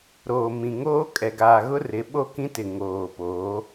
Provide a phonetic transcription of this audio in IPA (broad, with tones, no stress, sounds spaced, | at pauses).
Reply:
ɾ oː˨ m ĩ˨ ŋ oː˦ kʼ ɛ˨ ɡ aː˨ ɣ ʊ˦ r ɪ˨˦ ɓ o˦ k ĩ˦ t ɪ˨ ŋ oː˨ p oː˨˦